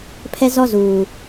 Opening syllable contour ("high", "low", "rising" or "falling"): high